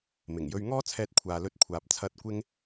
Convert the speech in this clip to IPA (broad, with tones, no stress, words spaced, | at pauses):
mɪ˨˩ŋjɵ˧ɥ ŋɔː˥t͡sʰɛː˧t̚ kʷʰaː˨lɵ˧t̚kʷʰaː˨p̚ t͡sʰɐ˨˥t̚kʷɪ˧ŋ